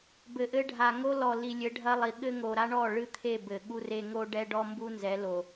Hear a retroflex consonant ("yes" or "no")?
yes